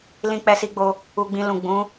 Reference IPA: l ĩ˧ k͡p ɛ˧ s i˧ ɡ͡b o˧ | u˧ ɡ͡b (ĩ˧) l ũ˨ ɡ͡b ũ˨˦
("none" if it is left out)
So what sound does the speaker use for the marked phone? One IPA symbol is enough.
ĩ˧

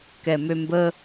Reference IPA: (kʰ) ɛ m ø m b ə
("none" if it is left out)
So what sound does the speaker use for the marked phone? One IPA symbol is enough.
k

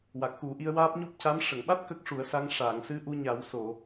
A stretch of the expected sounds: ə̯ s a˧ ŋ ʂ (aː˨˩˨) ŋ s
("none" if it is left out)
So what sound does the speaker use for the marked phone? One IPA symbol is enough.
aː˨˩˨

